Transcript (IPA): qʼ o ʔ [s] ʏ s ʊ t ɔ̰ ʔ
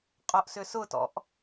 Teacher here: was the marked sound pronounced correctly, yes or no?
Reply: yes